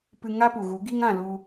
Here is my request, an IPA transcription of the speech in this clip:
p ɨ˧ ŋ a˦ p u˨ ɣ u˨˦ ɡ i˦ ŋ ã˦˨ l u˧

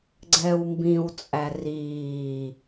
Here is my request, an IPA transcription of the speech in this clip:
ɡ͡ǀ ɛː w m b ĩ w t͡sʼ æ r iː

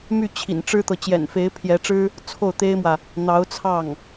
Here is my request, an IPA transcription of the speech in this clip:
m y˥˩ t͡ɕʰ ḭ˨˩ n ʈ͡ʂ ɻ̩˥ t̪ ɤ˨ t͡ɕ j ɛ̰˨˩ n f e˧˥ ɪ̯ pʰ j ɛ˧˥ ʈ͡ʂ ɻ̩˥ | t͡sʰ o˥˩ ʊ̯ t̪ e˥ ɪ̯ m w ä˨ | n̪ ɑ˧˥ ʊ̯ t͡sʰ ɑ˥˩ ŋ

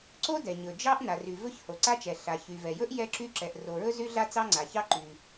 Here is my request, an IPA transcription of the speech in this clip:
ǀ o˥ d ɛ˩ ɲ ɵ˩ d͡ʒ ɑ˥ ʔ n a˩ r y˩ v ɵ˥ ç h o˩ ǀ a˥ t͡ʃ ɛ˩ ɬ a˩ ç y˩ v ɛ˩ j ɵ˥ ʔ j ɛ˥ ǁ y˥ ǁ ɛ˩ ʔ r o˩ ɹ ɵ˥ z y˥ ɮ a˥ t͡s ɑ˥ ŋ͡ǀ a˩ ç ɑ˥ ǃ y˩

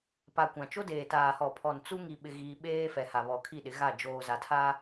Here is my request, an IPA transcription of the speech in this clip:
p a˨ kʷ ã˨ t͡ʃ o˦ d eː˨ t aː˨ h ɔ˨ pʰ ɔ˨ n t͡s u˦ ŋ i˦ ɓ ɪ˦ ɣ iː˦ ɓ eː˦ f ɛ˨ h a˨ β ɔ˨ kʰ i˦˨ ɗ ɪ˨˦ ɣ a˦˨ d͡ʒ oː˨ z a˨ tʰ a˦

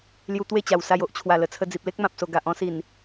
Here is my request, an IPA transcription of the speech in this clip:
l j u˧ t̪ w e˥˧ t͡ɕ a˨˩ w s a˧ j o˨ ʔ t͡ɕʰ w a˨˩ l ə˨˩ t͡sʰ ə˧ d͡z i˨ p̚ l e˦ k̚ m ã˨ p̚ s o˨˩ ɡ a˨ ʔ ɔ̃˦ s i˨˩ n

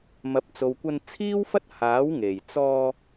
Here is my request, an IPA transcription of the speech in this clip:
m ɐ˨ p̚ t͡s o˨ w kʷ ɐ˧ n t͡sʰ iː˥ w f ɐ˥ t̚ h aː˨˥ w ŋ e˨˩ j t͡s ɔː˧

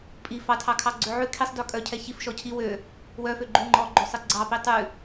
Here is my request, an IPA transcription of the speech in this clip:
pʼ i f ɑ tʰ ɑ kʰ ɑ ɡ͡ǀ ø ʕ ʉ kʰ i sˤ d œ kʼ œ cʰ ɛ ç i f ʃ ɔ cʰ i w ø | w œ f ø ɡ͡ǃ ʉ ŋ͡ǃ ɔ ɡ͡ǃ ø sˤ i ɡ͡ǀ ɑ p i tˤ ʉ

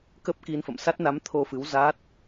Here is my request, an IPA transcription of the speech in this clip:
k ə˦˥ p̚ k i˧ n f ə̰˧˨ m s a˦˥ t̚ n a˨˦ m t̪ʰ o˧ f ɨ˨˦ w z aː˦˥ t̚

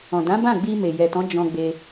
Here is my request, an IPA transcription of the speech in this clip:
ɔ̃˨ d ã˨˦ b ã˦˨ ɡ͡b i˧ m e˨ j ɛ˨ t ɔ̃˨˦ d͡ʒ ɔ̃˧ ɡ͡b e˧

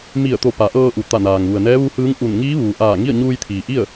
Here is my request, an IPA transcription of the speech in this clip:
m i˧˩ ə̯ t̪ o˧˩ p a˩˧ ʔ ɤː˧ ʔ u˩ t̪ a˧˩ n aː˩ ŋ ʋ u˩ ə̯ n ɛː˧˥ ʋ u˧˥ h ɯː˧˥ ŋ ʔ u˧˩ n ŋ iː˧˥ ʋ uː˩ ʔ aː˧˩ ŋ i˥˨ ə̯ ɲ uː˧ j t̪ʰ iː˩ ʔ i˥˨ ə̯

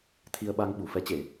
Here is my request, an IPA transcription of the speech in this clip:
t̪ʰ i˧ ə̯ ɓ a˧ ŋ ɓ u˧˩ f ɛ˨˦ t͡ɕ e˧˩˨

